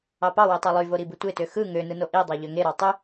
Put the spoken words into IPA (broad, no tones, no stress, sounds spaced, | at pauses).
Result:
ɑ p ɑ w e tˤ ɑ lˠ y v o ɾ i b ɯ tʷ e t ø x ɯ ŋ ø n ɯ n o ʔ i dˤ ɑ ʎ ø ŋ e ɾ ɑ tˤ y